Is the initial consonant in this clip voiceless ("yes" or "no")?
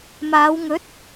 no